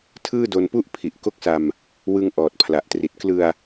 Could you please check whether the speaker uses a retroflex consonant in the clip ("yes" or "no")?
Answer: no